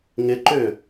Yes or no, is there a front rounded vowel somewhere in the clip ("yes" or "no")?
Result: yes